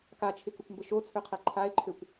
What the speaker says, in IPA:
k a t͡ʃʰ ɪ k ʊ kʷ m b ə ʃ o t͡sʰ ø qʰ ɛ ǃʰ a e̯ ǃʰ ø kʷ

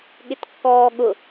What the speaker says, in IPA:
ɠ ɪ t kː ɔː ɠ ʊ

